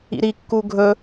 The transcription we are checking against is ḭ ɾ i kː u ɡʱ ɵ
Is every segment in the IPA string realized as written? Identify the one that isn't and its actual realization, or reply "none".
none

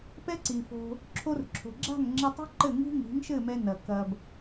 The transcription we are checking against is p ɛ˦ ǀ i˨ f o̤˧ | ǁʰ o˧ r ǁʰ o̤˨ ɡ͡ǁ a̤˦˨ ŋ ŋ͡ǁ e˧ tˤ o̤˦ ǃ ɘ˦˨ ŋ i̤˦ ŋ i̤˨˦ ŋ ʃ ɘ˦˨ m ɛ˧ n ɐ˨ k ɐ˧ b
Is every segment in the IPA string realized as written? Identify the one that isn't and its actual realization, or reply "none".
none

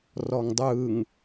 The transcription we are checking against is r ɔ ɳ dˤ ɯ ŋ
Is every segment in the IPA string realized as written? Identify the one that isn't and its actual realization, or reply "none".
ɳ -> ŋ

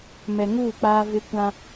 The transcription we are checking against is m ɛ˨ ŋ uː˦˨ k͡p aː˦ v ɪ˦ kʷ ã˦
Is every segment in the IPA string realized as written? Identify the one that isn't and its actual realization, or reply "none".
none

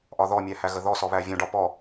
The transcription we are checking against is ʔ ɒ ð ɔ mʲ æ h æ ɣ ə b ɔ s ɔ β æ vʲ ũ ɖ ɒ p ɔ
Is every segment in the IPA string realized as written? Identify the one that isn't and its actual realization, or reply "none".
b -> ð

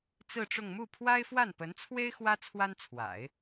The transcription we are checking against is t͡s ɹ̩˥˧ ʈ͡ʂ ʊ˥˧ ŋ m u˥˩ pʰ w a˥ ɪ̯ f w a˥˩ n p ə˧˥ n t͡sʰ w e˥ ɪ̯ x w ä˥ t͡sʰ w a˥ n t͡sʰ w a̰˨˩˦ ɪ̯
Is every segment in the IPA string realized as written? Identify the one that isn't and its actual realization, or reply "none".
none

